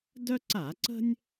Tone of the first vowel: high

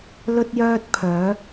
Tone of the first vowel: high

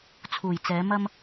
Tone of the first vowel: low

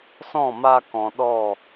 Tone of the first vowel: falling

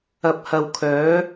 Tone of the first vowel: low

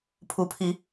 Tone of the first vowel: rising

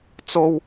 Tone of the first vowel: high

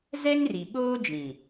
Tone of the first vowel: high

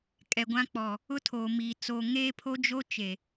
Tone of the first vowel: low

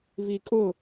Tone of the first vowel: low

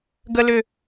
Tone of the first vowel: high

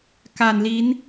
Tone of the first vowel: low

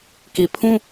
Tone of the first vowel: low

